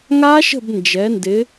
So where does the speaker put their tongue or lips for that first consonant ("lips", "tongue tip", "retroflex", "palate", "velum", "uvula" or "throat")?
velum